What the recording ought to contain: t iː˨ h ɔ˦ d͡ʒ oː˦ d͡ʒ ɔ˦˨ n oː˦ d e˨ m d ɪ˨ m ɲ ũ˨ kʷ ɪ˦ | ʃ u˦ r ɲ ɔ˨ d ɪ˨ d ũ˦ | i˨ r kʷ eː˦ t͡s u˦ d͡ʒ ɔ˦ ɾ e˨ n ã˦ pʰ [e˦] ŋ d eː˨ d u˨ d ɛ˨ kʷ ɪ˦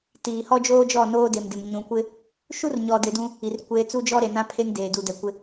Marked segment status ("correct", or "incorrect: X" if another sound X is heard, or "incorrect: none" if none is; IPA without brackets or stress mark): correct